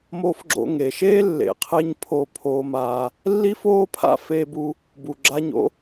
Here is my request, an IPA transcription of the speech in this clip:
m o˧ f ɡ͡ǁ o̰˧ ŋ e˨ ʃ eː˦ lː ḛ˨ qʰ e˧ ɲ pʰ oː˧ pʰ oː˧ m aː˧ | lː i˦ f oː˦ pʰ a̰˦ f eː˧ b u˧ | b u˨ ɡ͡ǁ a˧ ɲ o̰˦

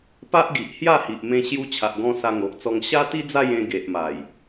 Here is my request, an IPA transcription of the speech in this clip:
p a˦ ʔ ɡ i˨ ʔ h j a˥˧ h i˨ ʔ m ẽ˧ ɕ j u˧ t͡ɕʰ a˨ ʔ ɡ ɔ̃˧ s a˧ ŋ o˨ ʔ t͡s ɔ˧ ŋ ɕ a˦ t̪ i˦ d͡z a˥˧ j ẽ˧ ɡ e˨ ʔ m a˨˩ j

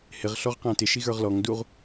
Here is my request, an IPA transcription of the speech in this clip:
h ɪ ʁ ɬ ɔ ʁ q æ̃ t ɪ ʃ i ɣ ə˞ ʁ l ɔ ŋ d u ʁ

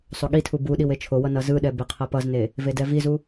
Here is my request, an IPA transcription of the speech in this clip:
sˤ o ɠ i tʰ u b u ɗ i w e t͡ʃʰ o w ʌ n ʌ z ɯ ɗ ɛ b e qʰ ʌ p ʌ z n e | v e d ɛ v i z u

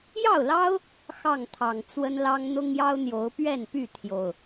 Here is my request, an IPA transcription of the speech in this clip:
j ɑ˥˨ ʊ̯ l ɑ˦ ʊ̯ | x ɑ˥˨ ŋ t̪ʰ ɑ˨˩ ŋ t͡s w ə˦ n l ɑ˦ ŋ n̪ ʊ˦ ŋ j ɑ˦ ʊ̯ n̪ j o˨˦ ʊ̯ p ɥ ɛ˥˨ n p y˥˨ t̪ʰ j o˨˩ ʊ̯

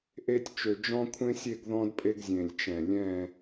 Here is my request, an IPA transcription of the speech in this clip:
ʔ e˥ tʲ t͡ʃ ø˧ d͡ʒ ɔ̃˥ kʷʰ ẽ˥ sʲ e˥˧ ɡ ð ɔ̃˥ d pʼ e˥ ɡ zʲ ẽ˧˩ lʲ t͡ʃ ɛ̃˧˩ lʲ ɛ̃˥˧

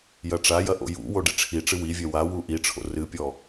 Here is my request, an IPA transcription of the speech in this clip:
j ɐ ʈ͡ʂ a j ɐ ʔ o̰ j ṵ w o ɖ i ʈ͡ʂʰ i ʈ͡ʂ ɨ w i vʲ ɛ w a w u ʔ i ʈ͡ʂʰ o̰ r ɨ pʲ ɔ

